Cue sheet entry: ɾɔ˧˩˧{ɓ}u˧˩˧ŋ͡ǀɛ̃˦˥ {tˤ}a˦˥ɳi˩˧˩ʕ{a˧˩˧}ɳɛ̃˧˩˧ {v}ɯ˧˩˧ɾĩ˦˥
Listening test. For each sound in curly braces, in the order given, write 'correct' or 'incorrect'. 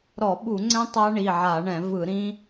correct, correct, correct, correct

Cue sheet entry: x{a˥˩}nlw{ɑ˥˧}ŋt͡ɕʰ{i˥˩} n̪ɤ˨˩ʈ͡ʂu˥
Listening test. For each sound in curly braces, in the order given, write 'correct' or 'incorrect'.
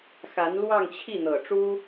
incorrect, correct, correct

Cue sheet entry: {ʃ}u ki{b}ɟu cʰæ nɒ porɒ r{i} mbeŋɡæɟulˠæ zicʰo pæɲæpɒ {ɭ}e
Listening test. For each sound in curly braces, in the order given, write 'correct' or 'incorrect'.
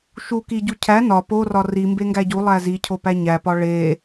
correct, incorrect, correct, correct

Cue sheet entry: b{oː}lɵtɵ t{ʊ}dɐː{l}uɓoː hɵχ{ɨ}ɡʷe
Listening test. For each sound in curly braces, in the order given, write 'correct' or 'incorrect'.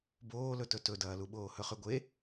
correct, incorrect, correct, incorrect

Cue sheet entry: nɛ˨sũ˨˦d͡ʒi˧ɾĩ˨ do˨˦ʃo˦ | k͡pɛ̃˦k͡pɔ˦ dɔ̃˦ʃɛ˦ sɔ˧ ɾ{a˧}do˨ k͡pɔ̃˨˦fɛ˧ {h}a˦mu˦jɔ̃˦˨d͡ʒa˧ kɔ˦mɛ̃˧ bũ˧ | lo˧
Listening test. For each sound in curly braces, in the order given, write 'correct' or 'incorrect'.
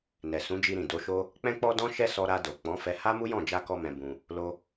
correct, correct

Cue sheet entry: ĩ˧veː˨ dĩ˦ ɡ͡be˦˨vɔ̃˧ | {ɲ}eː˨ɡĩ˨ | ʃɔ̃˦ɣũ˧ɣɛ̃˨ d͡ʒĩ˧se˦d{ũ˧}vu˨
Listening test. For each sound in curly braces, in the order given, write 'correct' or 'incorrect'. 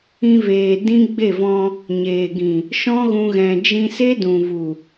correct, incorrect

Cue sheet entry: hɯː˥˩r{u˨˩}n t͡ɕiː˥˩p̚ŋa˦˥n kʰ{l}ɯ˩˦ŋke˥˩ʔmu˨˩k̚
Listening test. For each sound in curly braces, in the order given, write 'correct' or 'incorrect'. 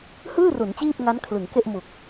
incorrect, correct

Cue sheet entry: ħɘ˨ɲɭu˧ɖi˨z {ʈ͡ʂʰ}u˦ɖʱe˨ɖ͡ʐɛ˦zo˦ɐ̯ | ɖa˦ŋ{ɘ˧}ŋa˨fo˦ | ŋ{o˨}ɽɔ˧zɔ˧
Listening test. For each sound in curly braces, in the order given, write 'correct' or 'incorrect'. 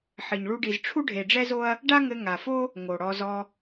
correct, correct, correct

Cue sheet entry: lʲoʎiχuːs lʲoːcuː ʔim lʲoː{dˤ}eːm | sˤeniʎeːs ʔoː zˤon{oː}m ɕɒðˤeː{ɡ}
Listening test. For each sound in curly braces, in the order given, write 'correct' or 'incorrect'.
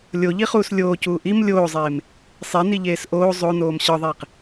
incorrect, correct, incorrect

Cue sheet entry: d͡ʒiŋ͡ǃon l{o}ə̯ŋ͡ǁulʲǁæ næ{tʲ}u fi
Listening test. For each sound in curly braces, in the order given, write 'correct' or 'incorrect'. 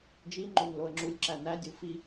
correct, incorrect

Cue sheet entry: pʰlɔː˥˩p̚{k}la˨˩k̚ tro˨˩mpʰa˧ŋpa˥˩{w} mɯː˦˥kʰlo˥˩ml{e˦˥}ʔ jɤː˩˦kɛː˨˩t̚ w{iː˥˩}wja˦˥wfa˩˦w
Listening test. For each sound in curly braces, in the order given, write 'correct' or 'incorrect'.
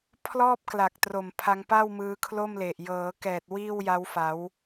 correct, correct, incorrect, correct

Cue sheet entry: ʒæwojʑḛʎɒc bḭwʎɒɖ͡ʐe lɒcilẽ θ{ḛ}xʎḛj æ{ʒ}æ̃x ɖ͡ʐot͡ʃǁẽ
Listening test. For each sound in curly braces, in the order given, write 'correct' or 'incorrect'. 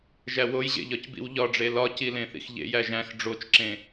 incorrect, correct

